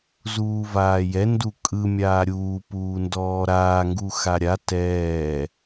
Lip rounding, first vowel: rounded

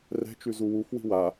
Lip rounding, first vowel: unrounded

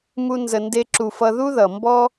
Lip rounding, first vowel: rounded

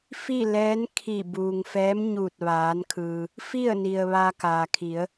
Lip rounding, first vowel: unrounded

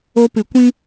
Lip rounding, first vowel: rounded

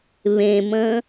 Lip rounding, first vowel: unrounded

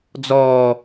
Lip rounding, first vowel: rounded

